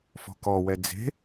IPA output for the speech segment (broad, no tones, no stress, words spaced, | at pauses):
fɔ̤kɔwɛ d͡ze̤